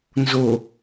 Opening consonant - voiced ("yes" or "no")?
yes